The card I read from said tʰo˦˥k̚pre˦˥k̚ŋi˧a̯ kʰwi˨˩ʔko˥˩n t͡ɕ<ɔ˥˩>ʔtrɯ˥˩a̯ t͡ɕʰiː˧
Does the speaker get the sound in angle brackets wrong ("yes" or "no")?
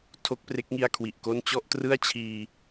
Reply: no